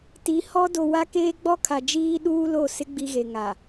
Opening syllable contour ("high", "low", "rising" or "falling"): rising